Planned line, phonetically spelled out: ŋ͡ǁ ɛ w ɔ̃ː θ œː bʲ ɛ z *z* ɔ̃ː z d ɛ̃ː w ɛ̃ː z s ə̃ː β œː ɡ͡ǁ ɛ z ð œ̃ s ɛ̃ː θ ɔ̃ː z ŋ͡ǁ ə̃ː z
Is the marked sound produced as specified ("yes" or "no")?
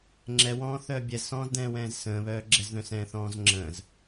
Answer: no